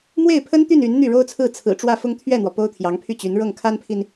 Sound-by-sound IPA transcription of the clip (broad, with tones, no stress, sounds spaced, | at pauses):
m w e˥˩ ɪ̯ pʰ ə˥ n t̪ y˥˩ n y˧˥ n n̪ y˥˩ ɻ o˥ ʊ̯ t͡sʰ ɹ̩˥˩ t͡sʰ ɹ̩˨˩ ʈ͡ʂ w ä˥˩ f ʊ˥ ŋ t̪ʰ ɥ ɛ˥˩ n̪ w ɔ˩ p o˥ ʊ̯ t̪ʰ j ɑ˧˥ ŋ pʰ y˥˩ t͡ɕ y˧˥ n ɻ ɤ˥˩ ŋ kʰ a˥ n pʰ i˨ n